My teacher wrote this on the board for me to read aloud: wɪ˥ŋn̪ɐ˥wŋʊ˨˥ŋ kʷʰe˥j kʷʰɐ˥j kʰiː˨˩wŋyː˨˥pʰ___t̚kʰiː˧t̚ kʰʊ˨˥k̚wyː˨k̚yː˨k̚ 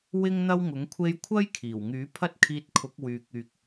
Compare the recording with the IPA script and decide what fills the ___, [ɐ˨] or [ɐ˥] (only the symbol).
ɐ˥